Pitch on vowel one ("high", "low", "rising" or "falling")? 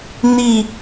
falling